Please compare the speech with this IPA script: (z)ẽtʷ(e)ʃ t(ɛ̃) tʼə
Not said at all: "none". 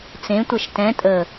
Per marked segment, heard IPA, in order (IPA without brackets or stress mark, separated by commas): t͡s, ɛ, ɛ̃